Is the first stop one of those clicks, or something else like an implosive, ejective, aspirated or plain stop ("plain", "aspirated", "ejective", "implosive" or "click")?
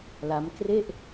plain